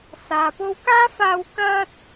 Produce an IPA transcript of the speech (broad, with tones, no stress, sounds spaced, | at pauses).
s aː˨ p o˧ w k aː˥ f aː˧ w k ɐ˥ t̚